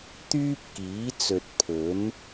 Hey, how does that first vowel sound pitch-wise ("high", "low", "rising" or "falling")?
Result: high